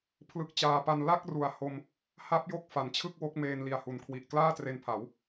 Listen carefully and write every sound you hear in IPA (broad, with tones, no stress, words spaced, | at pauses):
pʰlɯ˦˥k̚t͡ɕaː˧ pa˧n la˥˩k̚ru˨˩a̯ ho˧m | ha˦˥p̚jo˦˥k̚ fa˩˦nt͡ɕʰɯ˥˩k̚wo˦˥k̚ meː˧nli˨˩a̯hu˨˩nkʰwi˨˩ʔ klaː˥˩tre˧npʰa˩˦w